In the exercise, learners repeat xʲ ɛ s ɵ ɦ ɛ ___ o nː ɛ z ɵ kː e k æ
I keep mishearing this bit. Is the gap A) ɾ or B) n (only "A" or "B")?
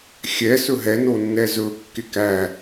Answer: B